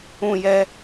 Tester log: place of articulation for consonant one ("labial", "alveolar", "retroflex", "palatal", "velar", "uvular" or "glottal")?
palatal